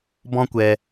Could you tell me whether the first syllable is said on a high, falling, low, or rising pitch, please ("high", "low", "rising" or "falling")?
high